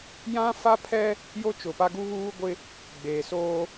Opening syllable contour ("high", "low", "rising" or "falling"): high